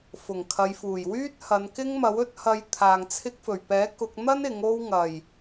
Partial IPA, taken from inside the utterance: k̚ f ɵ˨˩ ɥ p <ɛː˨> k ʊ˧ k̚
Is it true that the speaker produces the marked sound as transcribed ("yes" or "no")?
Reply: no